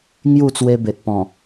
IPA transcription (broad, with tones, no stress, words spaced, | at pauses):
ŋju˥˧t͡swe˧be˨t̚ pɔ̃˨˩